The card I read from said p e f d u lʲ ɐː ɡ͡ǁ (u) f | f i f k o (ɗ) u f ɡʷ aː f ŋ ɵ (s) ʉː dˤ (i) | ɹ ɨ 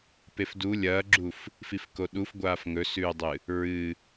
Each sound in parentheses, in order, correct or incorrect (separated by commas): correct, correct, correct, incorrect